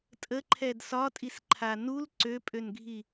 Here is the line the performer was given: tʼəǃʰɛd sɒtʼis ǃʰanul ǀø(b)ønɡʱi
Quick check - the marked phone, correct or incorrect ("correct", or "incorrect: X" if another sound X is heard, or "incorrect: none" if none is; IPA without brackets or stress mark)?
incorrect: pʼ